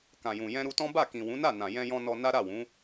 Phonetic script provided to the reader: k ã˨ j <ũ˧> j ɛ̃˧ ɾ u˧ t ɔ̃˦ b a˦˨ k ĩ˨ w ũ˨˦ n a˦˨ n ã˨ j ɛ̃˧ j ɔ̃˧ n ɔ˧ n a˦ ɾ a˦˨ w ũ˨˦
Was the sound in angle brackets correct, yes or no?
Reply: no